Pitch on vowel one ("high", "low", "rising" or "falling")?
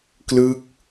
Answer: falling